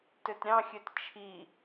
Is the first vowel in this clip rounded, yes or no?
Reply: yes